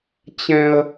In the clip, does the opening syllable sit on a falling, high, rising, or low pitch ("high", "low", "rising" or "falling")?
high